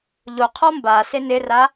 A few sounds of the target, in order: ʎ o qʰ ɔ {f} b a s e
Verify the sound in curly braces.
incorrect: m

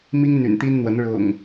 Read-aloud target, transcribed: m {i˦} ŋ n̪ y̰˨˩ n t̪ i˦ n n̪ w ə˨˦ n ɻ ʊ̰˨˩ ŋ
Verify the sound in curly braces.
correct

